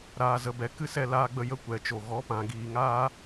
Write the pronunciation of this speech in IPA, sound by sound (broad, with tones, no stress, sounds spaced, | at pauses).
ɾ aː˨ z ə˨ b ɛ˨ k ɨ˧ s ɛ˧ l aː˧ ɡ͡b ə˧ j ə˧ kʷ ɛ˨ t͡ʃ o˨ ɣ ɔ˨˦ p ã˨ ɡ iː˨ ŋ aː˦